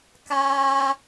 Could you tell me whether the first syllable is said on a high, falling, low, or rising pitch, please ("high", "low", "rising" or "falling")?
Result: high